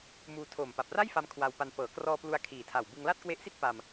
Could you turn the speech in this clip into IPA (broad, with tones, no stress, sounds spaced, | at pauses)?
m uː˧ tʰ oː˨˩ m p a˨˩ p̚ r a˥˩ j f a˧ m kʰ w a˧ w p a˧ n p ɤː˩˦ k r ɔː˧ p l u˧ a̯ kʰ iː˨˩ tʰ a˨˩ w b ɯ˧ ŋ l a˥˩ t̚ k w e˦˥ ʔ s i˥˩ t̚ p a˧ m